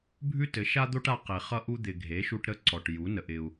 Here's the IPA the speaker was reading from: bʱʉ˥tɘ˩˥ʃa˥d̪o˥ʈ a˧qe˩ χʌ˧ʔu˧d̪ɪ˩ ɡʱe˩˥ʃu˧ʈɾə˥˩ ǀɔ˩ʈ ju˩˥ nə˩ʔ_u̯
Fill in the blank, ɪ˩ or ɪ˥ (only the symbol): ɪ˩